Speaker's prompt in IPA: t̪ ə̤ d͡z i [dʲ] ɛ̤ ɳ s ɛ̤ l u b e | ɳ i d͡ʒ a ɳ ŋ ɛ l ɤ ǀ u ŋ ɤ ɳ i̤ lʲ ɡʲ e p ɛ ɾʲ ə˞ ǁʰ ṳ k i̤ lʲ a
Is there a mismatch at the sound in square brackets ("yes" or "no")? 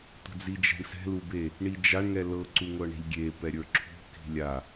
yes